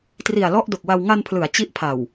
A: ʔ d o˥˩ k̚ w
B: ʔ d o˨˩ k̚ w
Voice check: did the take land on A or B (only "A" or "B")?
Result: B